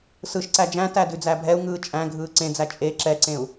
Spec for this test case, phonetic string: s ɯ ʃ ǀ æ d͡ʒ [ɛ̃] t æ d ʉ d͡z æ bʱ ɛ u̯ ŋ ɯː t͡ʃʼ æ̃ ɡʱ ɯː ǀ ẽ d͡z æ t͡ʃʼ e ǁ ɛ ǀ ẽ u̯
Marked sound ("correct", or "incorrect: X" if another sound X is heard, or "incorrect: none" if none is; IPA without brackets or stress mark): incorrect: æ̃